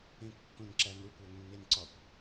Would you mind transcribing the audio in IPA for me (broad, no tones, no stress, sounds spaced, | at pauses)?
ẽ kː õ n ǁ æ n ɾ u kʷ æ ŋ nː e n ǀ ɒ kʷ